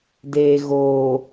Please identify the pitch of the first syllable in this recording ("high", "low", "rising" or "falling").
low